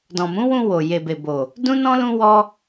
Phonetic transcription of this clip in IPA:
d ɔ̃˨ m ũ˨˦ w ũ˧ w o˨ j e˨ b e˨ b o˨ | d ũ˦ n ɔ̃˦ l ũ˦ w ɔ˦

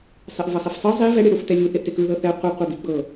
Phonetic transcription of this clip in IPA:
sˤ ɛ ʔ v ɤ sˤ i f sˤ ɯ zˤ i v ɛ ɽ i ɽ u f t ɛ lʲ u θ e ʔ t e k ɯ ð ɤ θ ɛ qʷ ɛ qʷ ɤ b i ɡ͡b ɤ

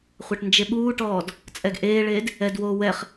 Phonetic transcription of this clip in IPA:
χʷ a ʈ n d͡ʒ e ɓ uː ʈ ɔː d | t͡sʼ ɛ ɡ ʔ eː ɭ eː d | ɛ d w oː w ɛ χ

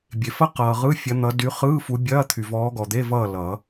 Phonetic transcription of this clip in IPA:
bʲ e˨ f ɐ˥ q ʌː˨ ʁ ɯ˧˥˧ fʲ ɐ˨˦ n̪ ʌ˨˦ d y˨˦ χ ɯː˧˥˧ f u˨˦ bʲ ɐː˧˥˧ t̪ʰ y˨ v ɔː˨˦ ɡ ɔ˨ d̪ e˧˥˧ v ʌː˥˨ l ʌ˨˩˦

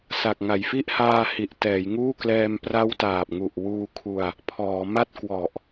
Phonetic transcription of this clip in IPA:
s a˨˩ k̚ ŋ a˨˩ j f i˦˥ ʔ h aː˧ h i˨˩ ʔ t ɛː˩˦ j ŋ uː˥˩ k l ɛː˧ m p r a˦˥ w t aː˨˩ p̚ ŋ u˨˩ ʔ w uː˧ kʰ u˧ a̯ | pʰ ɔː˩˦ m a˥˩ t̚ k w ɔ˨˩ ʔ

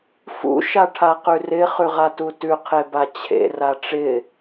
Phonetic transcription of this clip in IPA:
f ṵ ʃ a ʈʰ a q ʉ r ɪ χ ʉ ʁ a t u t ʉ qʰ e b a t͡ɕʰ ḛ r a ʈ͡ʂ ɪ

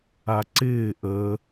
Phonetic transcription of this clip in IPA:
a ǀ ɪː ʔ əː

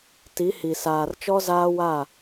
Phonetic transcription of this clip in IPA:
t i˨˦ h i˨ s aː˨ r t͡ʃ ɔ˦ z aː˦ w a˦˨

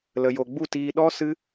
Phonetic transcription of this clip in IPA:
l ə˨ j o˨ ɡ͡b u˦˨ t iː˧ ɗ ɔ˦ s ɨ˦

